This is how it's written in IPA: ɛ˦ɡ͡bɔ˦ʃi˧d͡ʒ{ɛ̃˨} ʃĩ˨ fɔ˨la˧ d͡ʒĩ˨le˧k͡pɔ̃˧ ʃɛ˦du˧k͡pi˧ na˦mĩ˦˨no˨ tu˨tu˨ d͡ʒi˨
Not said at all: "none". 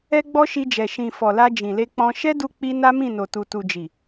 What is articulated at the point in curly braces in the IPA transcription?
ɛ˨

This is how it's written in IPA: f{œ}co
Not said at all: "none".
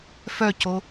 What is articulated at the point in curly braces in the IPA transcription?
œ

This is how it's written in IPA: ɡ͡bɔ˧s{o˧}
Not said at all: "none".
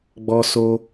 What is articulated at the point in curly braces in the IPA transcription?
o˧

